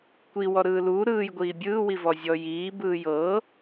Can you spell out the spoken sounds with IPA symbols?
kʷ i w ɔ ɾ ɯː l uː ɾ ɯː j ɡʷ iː bʲ ɯː w i v ɔ zʲ ɔ j iː b ɯː j ɤ

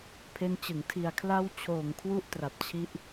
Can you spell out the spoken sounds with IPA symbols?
pʰ e˦˥ n t͡ɕ ɯ˩˦ ŋ tʰ i˨˩ a̯ kʰ l a˥˩ w t͡ɕʰ oː˨˩ ŋ kʰ w u˥˩ ʔ t r a˨˩ p̚ t͡ɕʰ i˦˥ ʔ

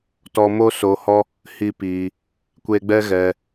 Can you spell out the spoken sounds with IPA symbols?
t ɔ˧ m o˦ s o˧ h ɔ˦ | h i˦ p iː˧ | kʷ e˧ ɡ͡b ɛ˦ ɣ ɛ˧

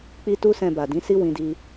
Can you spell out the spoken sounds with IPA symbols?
k͡p i˧ t u˧ s ɛ̃˨ b a˨ d ĩ˨˦ s i˦ w ĩ˧ d i˧

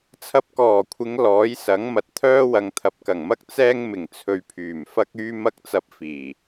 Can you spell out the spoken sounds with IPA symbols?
t͡sʰ ɐ˧ p̚ k ɔː˨˩ kʷʰ ɪ˨˧ ŋ l ɔː˨˥ j s ɐ˨˥ ŋ m ɐ˨ t̚ t̪ʰ œː˥ w ɐ˨˧ ŋ t̪ʰ ɐ˨ p̚ k ɐ˨˩ ŋ m ɐ˥ k̚ t͡s ɛː˥ ŋ m ɪ˨˩ ŋ t͡sʰ ɵ˧ ɥ pʰ yː˨˩ m f ɐ˥ k̚ yː˥ m ɐ˥ k̚ t͡s ɐ˧ p̚ f iː˨˩

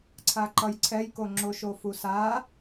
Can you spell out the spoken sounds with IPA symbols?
ǀʰ a ǃ ʌ j ǀʰ ɛ j k o ŋ͡ǁ o ʃ o f u s a

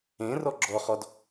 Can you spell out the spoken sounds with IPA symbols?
ẽ r ɔ ɡ͡ǁ ɔ χ ɔ d

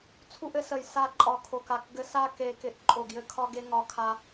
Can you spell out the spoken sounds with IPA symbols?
t͡sʰ u˥ ʔ ɘ˥ s ə˦˨ j s a˦˨ ǃʼ ɒ˦˨ kʰ o˦˨ k a˦˨ k ɡ ɘ˥ s a˥ k e˥ k ɪ˥ ʔ ǃʼ o˦˨ ɡ j ɘ˥ kʰ ɒ˥ ɡ e˥ ŋ ɒ˥ kʰ a˥

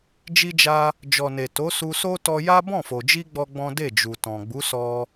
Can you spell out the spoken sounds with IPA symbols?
d͡ʒ i˧ d͡ʒ a˧ | d͡ʒ ɔ˨ n e˨ t o˨˦ s u˧ s o˦ t ɔ˧ j a˦ b ɔ̃˦˨ f o˨ d͡ʒ i˧ ɡ͡b ɔ˦ ɡ͡b ɔ̃˦ d e˦˨ d͡ʒ u˨ t ɔ̃˨ ɡ͡b u˨˦ s ɔ˧

